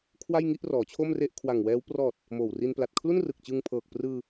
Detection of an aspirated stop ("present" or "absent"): present